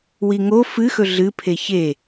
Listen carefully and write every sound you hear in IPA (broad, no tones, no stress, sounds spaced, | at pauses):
w i ŋ o f ɨ x ɵ ɮ ɨ pʰ e ç e